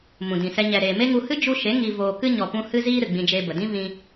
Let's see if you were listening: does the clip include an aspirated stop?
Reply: no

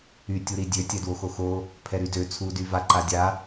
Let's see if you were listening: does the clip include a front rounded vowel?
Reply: yes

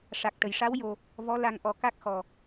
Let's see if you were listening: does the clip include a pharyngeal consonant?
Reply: no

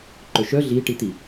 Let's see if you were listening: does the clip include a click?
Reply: yes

